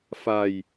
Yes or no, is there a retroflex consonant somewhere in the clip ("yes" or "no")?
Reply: no